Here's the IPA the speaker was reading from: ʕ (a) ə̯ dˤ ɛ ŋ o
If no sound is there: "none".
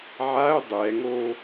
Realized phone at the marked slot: a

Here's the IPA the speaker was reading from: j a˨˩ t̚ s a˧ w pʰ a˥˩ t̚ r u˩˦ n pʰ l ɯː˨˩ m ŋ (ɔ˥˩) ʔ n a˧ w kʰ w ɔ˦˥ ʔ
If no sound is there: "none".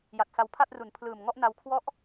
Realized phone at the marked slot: ɔ˥˩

